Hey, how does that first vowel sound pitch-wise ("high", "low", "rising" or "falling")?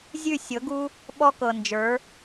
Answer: falling